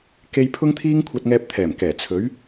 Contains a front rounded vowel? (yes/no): no